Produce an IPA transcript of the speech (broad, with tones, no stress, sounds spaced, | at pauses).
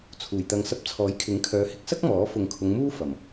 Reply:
t͡sʰ uː˨˩ j t̪ ɐ˨ ŋ s ɐ˧ p̚ t͡sʰ ɔː˨˥ j kʰ ɪ˨˥ ŋ kʰ œː˨˧ h ɪ˧ k̚ s ɐ˥ k̚ m ɔː˨˥ f ʊ˨ ŋ kʰ ʊ˨˧ ŋ m uː˥ f ɐ˨˩ m